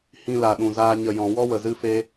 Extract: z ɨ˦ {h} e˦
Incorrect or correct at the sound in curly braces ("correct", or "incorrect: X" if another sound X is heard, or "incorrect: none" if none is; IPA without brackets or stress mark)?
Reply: incorrect: f